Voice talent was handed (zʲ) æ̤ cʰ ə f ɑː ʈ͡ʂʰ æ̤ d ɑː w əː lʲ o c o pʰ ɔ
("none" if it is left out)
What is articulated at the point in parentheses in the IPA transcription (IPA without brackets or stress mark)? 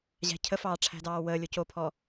ʑ